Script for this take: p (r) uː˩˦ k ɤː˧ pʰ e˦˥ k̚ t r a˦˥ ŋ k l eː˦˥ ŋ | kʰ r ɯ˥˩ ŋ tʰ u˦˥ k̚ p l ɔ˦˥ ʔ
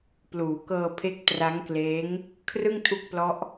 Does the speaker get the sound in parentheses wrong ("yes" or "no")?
yes